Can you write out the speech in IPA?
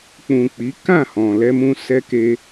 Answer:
k͡pũ˨k͡pi˨˦ kã˦˨hɔ̃˨ lɛ˧mũ˧ sɛ˦ke˦

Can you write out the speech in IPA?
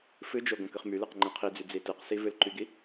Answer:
fɨd͡ʒo ɡõkɨχmylɨq ŋ͡ǃɛ̃qʰid͡zy d͡zitɨqsi vɨlǃyɡi

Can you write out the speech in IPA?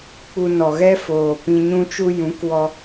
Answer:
k͡pu˧ nɔ˨ɣɛ˦ foː˨ pĩ˧ɲũ˦t͡ʃu˦ jũ˨˦k wɔ˧

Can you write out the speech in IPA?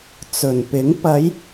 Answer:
t͡sɵ˨˩npɪ˨˥ŋ pɐ˨˧j

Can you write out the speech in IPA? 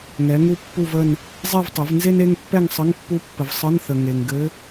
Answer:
ŋɛ˩˥ŋu˥˧pːu˥˧və˥˧n | zˤe˥˧vtˤɘ˩˥v nze˥ne˧˥˧ŋpːɛ˥˧ŋsˤə˧˥˧ŋ pːu˧˥pːə˨v sˤə˧˥˧nθə˨ ŋe˨ŋɡɘ˧˥

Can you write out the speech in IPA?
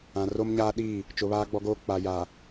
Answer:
ã˨ro˦mɲaː˦ɗiː˦˨ | t͡ʃʊ˨βaː˦ɡ͡bɔ˦ɡoː˦ k͡pa˨jaː˨

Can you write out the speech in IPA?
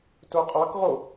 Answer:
toqʼɑkʁo

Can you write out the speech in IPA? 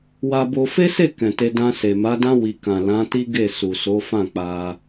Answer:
wa˧bo˧ fe˦se˦˨ kɛ̃˨te˧ dã˧se˨ ma˨˦dã˦ wi˧ kã˨ lã˨˦ti˦ ɡe˦˨su˨ so˨˦fã˦˨k͡pa˧

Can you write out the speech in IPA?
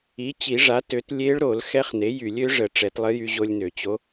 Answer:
i˩˥ t͡ɕi˨˩˦ʐa˩˥ tø˩˥t lʲe˧˥ɭɾo˨˩˦l xɛ˧˥χne˩˥jy˨˩˦lʲ ø˩˥ʐə˨˩˦ ʈ͡ʂɛ˨˩˦tlˠə˧˥jy˧ ʑo˧lʲnø˨˩˦t͡ɕo˧˥

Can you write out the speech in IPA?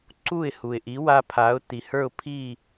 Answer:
ǀu˥˩ɪ̯hu˩ɪ̯ʔi˩˥wa˧ pʰa˩˥ʊ̯ ti˩hə˞˥˩ʊ̯ pʰi˥˩

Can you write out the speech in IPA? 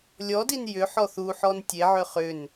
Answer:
lʲɔdin jʏ ħɔθuħɔn tʲeʕʏ χʏn

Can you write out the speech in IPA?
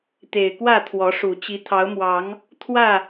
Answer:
t̪e˨˩ɪ̯kwä˥˨t̪ʰwɔ˨˦ ʂu˨˩ t͡ɕi˨˦t̪ʰɑ˨˦ʊ̯mwɑ˨˦ŋ | t̪ʰwä˥˨

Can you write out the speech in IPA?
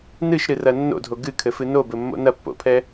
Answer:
nɨʃɾɨrɐ nːo̰dʱo ɡɨkʰɘfɨ nobɘmːo̰ nɐpːo̰pʰɛ

